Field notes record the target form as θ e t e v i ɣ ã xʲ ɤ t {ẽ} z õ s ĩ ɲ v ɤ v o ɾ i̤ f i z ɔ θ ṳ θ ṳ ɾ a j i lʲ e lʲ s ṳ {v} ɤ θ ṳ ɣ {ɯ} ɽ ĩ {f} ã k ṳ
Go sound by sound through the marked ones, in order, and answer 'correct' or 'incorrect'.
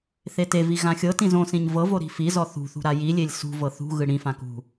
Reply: incorrect, correct, correct, correct

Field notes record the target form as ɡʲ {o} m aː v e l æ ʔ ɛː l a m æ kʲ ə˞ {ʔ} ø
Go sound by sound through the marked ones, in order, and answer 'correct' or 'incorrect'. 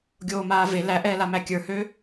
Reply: incorrect, incorrect

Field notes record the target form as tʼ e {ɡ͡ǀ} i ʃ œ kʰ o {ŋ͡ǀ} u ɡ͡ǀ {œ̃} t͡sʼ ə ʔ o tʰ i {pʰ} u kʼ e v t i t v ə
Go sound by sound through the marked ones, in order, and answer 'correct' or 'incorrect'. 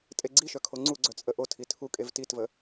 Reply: correct, correct, incorrect, incorrect

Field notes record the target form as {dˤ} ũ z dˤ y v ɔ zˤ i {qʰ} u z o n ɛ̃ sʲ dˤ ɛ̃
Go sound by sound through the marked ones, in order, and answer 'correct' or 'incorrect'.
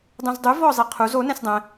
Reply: correct, correct

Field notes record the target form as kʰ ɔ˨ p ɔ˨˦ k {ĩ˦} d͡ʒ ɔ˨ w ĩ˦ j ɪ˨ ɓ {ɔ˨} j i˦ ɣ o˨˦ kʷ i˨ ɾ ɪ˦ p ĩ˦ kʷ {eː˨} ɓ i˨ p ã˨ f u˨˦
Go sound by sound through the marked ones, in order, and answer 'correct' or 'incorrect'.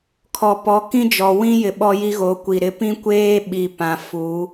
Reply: correct, incorrect, incorrect

